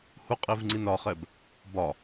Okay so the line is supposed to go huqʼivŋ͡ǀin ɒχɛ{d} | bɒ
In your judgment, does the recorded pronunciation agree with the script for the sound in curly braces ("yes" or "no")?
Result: no